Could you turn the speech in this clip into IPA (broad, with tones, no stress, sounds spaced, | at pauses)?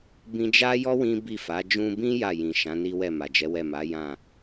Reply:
b ĩ˧ d͡ʒ a˦ j ɔ˦ w ĩ˦ b i˦˨ f a˨˦ d͡ʒ ũ˧ b ĩ˦ j a˦˨ j ĩ˨ ʃ ã˨˦ n i˦ w ɛ˦˨ m a˨ d͡ʒ ɛ˨˦ w ɛ˦˨ m a˨˦ j ã˦˨